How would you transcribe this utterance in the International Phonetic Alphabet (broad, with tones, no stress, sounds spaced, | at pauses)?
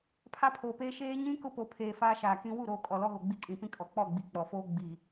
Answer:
pʰ a˦ pʰ oː˨ p eː˦ ʃ eː˦ ɲ ĩ˦ k ʊ˦ p o˨ pʰ eː˨ f aː˦ ʃ aː˨ k ĩ˦ w u˦˨ ɾ oː˨ kʼ ɔ˨ l ɔ˦ ɣ o˨ ɡ͡b i˦ kʼ ĩ˨ p ĩ˦ kʼ ɔ˨ k͡p ɔ˦˨ ɡ͡b i˨ k͡p ɔ˨ f oː˦ ɡ͡b i˨